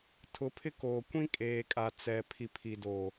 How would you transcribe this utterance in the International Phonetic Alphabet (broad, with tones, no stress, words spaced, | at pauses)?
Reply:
tʰʊ˨˦pʰɪ˦ koː˨kʷĩ˦ kʼeː˨kʼa˨t͡sɛ˨ pʰi˨pʰi˨do˨